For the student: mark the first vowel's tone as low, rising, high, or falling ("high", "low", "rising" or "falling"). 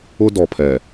high